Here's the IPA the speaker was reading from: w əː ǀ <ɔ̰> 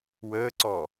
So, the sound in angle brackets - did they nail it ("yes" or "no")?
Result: no